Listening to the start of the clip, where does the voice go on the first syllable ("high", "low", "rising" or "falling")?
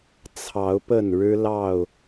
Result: rising